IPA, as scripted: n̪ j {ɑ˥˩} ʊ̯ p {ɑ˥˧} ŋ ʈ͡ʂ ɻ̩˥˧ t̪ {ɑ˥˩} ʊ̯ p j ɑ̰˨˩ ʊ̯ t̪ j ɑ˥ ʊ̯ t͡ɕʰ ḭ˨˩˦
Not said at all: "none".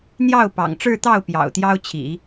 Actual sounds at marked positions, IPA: ɑ˥˩, ɑ̰˨˩, ɑ˥˩

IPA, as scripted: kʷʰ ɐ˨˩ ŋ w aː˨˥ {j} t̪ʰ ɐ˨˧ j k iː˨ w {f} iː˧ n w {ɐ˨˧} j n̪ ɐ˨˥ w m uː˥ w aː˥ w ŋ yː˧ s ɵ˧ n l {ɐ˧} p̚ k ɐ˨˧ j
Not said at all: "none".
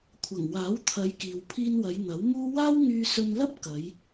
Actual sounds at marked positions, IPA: w, pʰ, ɐ˨˧, ɐ˥

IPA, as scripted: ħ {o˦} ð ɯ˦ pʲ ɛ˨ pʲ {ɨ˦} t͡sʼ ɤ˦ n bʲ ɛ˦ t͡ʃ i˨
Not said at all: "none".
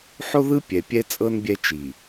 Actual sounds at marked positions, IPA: o˦, ɛ˦

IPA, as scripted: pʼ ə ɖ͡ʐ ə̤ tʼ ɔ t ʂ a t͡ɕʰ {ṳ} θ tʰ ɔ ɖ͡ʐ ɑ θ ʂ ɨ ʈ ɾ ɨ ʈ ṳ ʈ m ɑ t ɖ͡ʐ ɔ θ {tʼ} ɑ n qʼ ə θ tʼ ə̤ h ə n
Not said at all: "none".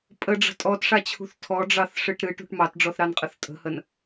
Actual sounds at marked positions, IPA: ṳ, ɾ

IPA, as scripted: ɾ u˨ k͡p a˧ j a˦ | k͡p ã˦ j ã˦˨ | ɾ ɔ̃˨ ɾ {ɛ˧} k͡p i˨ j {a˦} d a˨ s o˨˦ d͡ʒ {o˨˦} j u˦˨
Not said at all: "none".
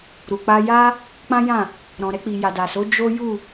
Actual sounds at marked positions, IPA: ɛ˧, a˨, o˦

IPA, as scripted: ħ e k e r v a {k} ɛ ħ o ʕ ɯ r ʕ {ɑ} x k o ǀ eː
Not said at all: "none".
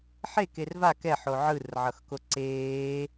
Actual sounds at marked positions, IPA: k, ʌ

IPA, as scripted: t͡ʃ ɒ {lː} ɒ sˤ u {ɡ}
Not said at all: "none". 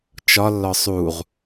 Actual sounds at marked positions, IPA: lː, ʁ

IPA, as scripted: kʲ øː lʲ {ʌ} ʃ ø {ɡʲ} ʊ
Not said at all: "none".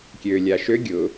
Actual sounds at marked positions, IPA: a, ɡʲ

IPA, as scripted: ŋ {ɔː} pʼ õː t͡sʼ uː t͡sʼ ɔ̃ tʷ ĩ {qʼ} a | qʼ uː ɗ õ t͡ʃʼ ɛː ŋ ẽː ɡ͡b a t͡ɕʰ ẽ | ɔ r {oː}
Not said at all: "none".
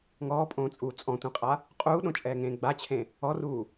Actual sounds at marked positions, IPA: ɔː, qʼ, uː

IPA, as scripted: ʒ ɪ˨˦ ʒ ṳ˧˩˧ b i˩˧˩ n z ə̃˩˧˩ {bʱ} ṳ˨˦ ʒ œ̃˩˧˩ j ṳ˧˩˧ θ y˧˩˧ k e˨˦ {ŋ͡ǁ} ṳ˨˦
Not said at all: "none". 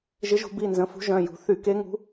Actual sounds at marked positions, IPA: f, ŋ

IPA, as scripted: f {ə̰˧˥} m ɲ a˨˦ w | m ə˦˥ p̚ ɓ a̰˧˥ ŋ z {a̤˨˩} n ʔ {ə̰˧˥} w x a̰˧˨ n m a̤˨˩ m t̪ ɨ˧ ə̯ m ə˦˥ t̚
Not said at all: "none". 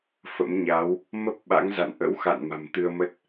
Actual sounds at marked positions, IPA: ə̰˧˥, a̰˧˨, ə̰˧˥

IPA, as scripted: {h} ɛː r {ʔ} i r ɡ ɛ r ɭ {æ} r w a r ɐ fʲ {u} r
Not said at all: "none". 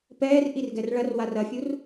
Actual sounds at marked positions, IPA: p, ʔ, ɐ, u

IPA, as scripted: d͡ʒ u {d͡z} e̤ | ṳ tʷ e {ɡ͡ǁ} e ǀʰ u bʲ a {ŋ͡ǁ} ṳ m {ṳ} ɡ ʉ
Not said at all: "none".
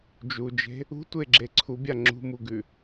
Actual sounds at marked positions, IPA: d͡ʒ, ɡ͡ǁ, ŋ͡ǁ, u

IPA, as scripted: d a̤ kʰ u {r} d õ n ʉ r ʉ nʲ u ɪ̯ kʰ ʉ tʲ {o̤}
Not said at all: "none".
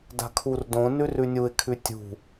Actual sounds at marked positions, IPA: r, ṳ

